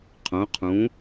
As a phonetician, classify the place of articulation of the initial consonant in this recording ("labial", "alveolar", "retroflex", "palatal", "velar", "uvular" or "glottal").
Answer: uvular